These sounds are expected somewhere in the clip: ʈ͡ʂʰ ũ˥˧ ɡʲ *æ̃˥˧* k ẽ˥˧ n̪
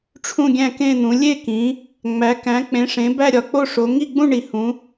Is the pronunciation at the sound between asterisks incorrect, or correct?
correct